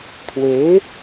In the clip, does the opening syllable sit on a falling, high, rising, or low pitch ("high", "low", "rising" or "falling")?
rising